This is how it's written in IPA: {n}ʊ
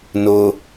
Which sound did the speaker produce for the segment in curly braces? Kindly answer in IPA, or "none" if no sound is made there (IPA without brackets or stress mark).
n